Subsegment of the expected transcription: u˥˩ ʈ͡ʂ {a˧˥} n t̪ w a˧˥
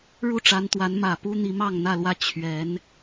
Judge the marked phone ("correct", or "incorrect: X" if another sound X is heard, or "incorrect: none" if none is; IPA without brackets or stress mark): correct